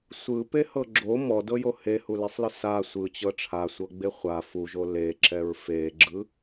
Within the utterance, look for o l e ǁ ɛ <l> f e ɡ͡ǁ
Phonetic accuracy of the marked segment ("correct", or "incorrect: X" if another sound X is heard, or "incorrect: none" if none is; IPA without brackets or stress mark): incorrect: ɹ